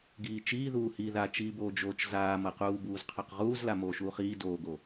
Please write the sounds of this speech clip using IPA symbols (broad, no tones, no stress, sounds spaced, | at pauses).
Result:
ɡ iː t͡ʃ iː ð uː h i ð a t͡ʃ iː b oː d͡ʒ oː t͡ʃ z aː m ʌ q uː b uː z qʰ ɑ q ʁ uː z l a m oː ʃ uː χ iː d oː ɡ o